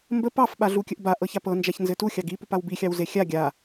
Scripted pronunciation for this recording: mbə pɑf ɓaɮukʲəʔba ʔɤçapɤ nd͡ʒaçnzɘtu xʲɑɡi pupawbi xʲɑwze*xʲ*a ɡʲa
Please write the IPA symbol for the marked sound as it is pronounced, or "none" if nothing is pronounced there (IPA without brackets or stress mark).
xʲ